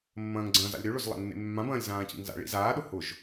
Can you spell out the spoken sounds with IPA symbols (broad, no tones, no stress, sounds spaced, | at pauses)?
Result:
mː ɐ̃ː ŋ ɡ͡ǀ ɐ̃ː z a̰ lʲ ɾ ø ɭ ʊ z lˠ a̰ nː ḛ mː ã b ɐ̃ː lʲ z ãː c ḭ ŋ z a̰ ɭ ḭ z aː ɗ ʊ h ʊ ʒ